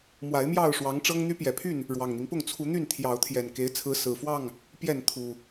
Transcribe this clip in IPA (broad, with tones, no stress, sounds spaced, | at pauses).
m w a˨˦ ɪ̯ m j ɑ˥˨ ʊ̯ ʂ w ɑ˨˦ ŋ ʈ͡ʂ ɤ˦ ŋ n̪ y˦ p j ɛ˨˩ pʰ y˥˨ n | ɻ w ɑ˨˩ ŋ n̪ i˦ ŋ p ʊ˥˨ ŋ t͡sʰ u˨˦ n̪ y˥˨ n t̪ʰ j ɑ˨˦ ʊ̯ t̪ʰ j ɛ˨˩ n k e˨˦ ɪ̯ t͡sʰ ɹ̩˨˦ s ɹ̩˨˩ f w ɑ˥˨ ŋ | p j ɛ˥˨ n t̪ʰ u˨˩